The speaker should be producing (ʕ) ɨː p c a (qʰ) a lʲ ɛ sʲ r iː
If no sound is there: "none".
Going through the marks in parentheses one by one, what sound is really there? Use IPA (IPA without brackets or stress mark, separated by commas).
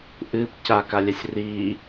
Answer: ʔ, k